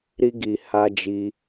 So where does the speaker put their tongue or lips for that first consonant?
tongue tip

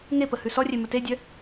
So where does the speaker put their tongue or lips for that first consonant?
velum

